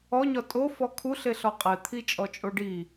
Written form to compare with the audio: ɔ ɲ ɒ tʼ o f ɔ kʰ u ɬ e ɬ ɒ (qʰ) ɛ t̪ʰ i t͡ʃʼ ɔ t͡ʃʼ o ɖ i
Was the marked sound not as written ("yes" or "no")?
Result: yes